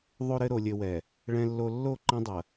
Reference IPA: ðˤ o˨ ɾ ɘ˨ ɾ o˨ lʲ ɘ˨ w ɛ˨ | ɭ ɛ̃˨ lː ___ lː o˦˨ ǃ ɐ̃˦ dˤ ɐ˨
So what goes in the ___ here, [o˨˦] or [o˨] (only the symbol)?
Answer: o˨